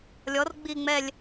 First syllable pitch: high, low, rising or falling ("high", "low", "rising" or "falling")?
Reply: rising